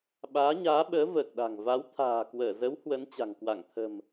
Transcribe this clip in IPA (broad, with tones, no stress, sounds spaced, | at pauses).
ɓ aː˨˦ ɲ aː˨˦ ɓ əː˨˦ v əː˨˩ k̚ ɗ a̤˨˩ ŋ v a˨˦ w t̪ʰ a̤ː˨˩ k w əː˧˩ z ə˨˦ w h w ə˨˦ n t͡ɕ a̤˨˩ ŋ k w a˧˩ ŋ t̪ʰ ə̤˨˩ m